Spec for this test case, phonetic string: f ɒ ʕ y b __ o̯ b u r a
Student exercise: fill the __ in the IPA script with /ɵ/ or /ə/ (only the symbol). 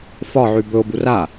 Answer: ɵ